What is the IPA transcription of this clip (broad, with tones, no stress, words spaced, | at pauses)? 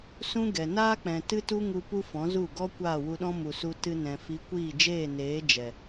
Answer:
sũ˦ɡɛ˨ naː˦k͡pɛ̃˨ tɨ˦tu˦ŋu˧ pu˦fɔ̃˨˦zu˦˨ ɡɔ˦ kʷaː˦˨wu˧ɗɔ̃˦ mu˨su˧ tɨ˧nɛ̃˨ fi˨˦kʷiː˦˨d͡ʒeː˦˨neː˨˦ d͡ʒɛ˨